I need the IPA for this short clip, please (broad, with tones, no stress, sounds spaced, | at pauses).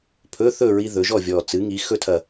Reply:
pʰ ɵ˧˥˧ θ ɵ˥˨ ɹ i˧ ð ɵ˩˧ ʒ ɔ˥˨ vʲ ɔ˨˩ t͡s ɨ˩˧ ŋ i˩˧ x ɵ˧ tʰ ɐ˨˩